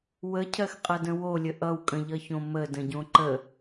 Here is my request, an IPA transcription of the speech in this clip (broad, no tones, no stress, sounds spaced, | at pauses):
w ə cʰ ɜ x qʼ ʌ d ə̃ w o lʲ ə ʔ ʌ w kʼ ə̃ ʎ ʌ ç õ m ə d ə̃ ɟ õ ǃ ə